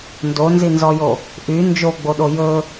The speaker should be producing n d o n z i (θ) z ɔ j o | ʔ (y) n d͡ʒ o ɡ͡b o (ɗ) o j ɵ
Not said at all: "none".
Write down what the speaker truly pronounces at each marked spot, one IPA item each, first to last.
n, y, ɗ

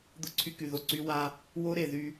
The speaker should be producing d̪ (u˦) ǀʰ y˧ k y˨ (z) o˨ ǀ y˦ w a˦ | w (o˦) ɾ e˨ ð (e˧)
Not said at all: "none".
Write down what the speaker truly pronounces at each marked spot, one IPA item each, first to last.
ʊ˦, ð, o˦, y˧

